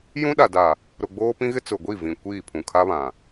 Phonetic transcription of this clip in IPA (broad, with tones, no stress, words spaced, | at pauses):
jũ˦ɗa˨da˨ | ɾʊ˨ɡ͡boː˦pĩ˦ ɣɪ˦t͡sʊ˨ɡʷi˦˨ vĩ˨kʷiː˦˨ pʰũ˨kʰa˦βã˨